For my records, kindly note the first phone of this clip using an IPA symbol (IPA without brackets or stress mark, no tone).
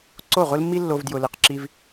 ǀ